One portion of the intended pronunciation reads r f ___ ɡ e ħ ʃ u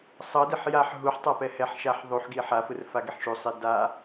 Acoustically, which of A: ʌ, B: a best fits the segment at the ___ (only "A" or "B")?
B